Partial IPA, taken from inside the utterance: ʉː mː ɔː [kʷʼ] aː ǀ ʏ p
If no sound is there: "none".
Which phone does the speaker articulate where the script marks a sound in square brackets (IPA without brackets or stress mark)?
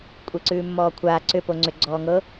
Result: kʷʰ